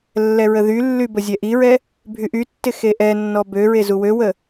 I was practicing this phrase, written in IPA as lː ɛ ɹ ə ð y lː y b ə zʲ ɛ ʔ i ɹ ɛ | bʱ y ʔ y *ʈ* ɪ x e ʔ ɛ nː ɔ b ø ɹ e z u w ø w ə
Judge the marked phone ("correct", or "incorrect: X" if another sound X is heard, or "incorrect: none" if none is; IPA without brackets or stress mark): incorrect: tː